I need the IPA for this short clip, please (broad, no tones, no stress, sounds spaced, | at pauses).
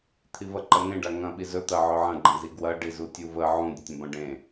t̪ʰ i v ɐ ǃ ɐ ŋ ẽ ɖ a ŋ ɐ̃ ɓ i z ɵ t̪ ɐ ʕ ɵ ʕ ɐ̃ ɡ͡ǃ ɐ̃ z i ɡ w ɐ ɖ i z u tʲ u v ə ʕ ũ dʲ u tʲ ə̃ b ɐ̃ ɖ ẽ